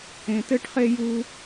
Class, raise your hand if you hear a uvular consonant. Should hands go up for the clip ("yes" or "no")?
yes